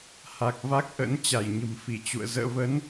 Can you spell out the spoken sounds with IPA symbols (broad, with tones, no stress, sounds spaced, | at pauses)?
h a˨˩ k̚ v a˦˥ k̚ ʔ ə̰˧˥ n t͡ɕ a˧˩ j ɲ ə̤˨˩ m f i˧˩ t͡ɕ ṵ˧˨ ə̯ z ə̰ː˧˨ v ə˨˦ n